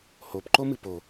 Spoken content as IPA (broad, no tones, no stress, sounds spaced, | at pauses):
h o p ǃ o m ɨ p o